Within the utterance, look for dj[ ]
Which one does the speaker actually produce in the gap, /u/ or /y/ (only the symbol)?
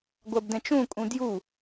u